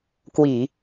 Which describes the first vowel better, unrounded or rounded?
unrounded